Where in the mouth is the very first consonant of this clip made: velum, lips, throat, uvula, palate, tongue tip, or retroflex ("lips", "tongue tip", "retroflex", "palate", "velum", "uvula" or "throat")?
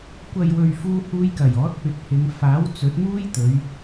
velum